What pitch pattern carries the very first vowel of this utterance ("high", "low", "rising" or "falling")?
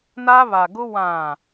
high